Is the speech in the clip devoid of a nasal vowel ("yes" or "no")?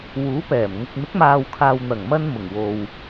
yes